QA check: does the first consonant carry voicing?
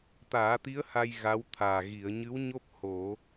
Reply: no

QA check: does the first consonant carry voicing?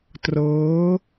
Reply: no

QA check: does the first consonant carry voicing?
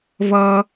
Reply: yes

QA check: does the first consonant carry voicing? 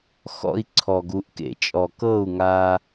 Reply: no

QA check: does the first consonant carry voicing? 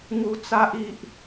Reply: yes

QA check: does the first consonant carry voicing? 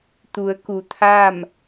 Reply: no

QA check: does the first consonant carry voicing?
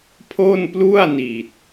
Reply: no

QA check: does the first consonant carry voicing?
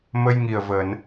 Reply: yes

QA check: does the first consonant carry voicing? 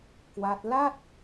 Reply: no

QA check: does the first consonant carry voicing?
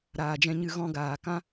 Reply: yes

